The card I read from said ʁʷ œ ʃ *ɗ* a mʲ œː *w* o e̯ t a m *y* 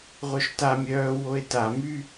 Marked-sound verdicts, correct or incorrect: incorrect, correct, correct

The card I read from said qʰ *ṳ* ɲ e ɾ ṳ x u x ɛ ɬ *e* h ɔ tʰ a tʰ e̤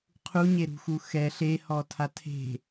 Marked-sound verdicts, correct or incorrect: incorrect, correct

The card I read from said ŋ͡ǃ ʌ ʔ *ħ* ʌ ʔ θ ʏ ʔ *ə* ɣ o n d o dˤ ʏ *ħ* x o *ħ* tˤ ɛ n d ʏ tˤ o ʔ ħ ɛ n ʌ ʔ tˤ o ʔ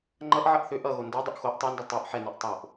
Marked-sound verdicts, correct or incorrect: incorrect, incorrect, incorrect, incorrect

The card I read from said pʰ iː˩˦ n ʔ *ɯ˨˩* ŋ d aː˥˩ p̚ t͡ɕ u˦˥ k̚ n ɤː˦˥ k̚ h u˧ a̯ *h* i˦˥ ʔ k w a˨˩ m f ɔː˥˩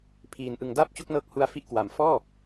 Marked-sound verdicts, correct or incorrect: correct, incorrect

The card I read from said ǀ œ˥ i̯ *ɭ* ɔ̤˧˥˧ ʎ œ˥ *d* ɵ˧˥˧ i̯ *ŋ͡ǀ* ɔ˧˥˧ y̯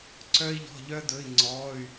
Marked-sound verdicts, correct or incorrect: incorrect, correct, correct

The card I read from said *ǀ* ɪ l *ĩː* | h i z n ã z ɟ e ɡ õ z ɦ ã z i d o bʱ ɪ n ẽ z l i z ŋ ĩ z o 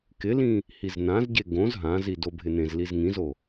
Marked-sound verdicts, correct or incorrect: incorrect, incorrect

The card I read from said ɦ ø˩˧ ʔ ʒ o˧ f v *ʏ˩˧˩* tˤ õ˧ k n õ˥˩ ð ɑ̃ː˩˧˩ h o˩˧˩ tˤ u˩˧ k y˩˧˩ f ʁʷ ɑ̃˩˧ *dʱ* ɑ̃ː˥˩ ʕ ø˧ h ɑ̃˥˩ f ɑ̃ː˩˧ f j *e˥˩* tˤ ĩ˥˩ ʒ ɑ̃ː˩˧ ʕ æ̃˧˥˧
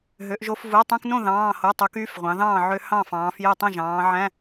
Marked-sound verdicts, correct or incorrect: incorrect, incorrect, correct

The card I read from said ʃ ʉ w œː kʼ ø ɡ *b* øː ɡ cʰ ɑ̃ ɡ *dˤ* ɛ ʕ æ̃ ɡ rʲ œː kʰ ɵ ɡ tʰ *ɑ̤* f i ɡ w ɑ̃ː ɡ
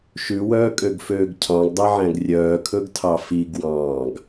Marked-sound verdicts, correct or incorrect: incorrect, correct, incorrect

